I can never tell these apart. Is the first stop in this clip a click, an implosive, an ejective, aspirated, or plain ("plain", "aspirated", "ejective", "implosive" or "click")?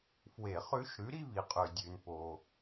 ejective